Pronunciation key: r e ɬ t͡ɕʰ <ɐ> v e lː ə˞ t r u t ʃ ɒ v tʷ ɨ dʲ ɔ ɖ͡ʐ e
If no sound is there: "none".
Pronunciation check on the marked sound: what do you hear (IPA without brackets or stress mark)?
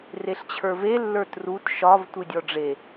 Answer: ə˞